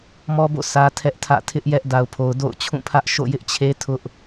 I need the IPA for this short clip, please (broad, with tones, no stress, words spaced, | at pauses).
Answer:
mɔ˦bo̰˦˨ sä˦tʰɛ˦ʔtʰä̰˦˨ tʰɪ˦ʔjɛ˦ʔ da˨ʊ̯pʰo˨ʊ̯ do̰˦˨ʊ̯ t͡ɕʰũ˦˨pʰä˦ʔ ʃo̰˦˨jɪ˦ʔt͡ɕʰe˦ tʰʊ˦ʔ